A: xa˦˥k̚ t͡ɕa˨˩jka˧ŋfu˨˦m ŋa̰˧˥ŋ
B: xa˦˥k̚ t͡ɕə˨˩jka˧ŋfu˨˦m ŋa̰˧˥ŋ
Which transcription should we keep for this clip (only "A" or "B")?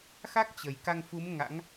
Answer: B